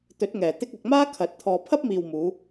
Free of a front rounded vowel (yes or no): yes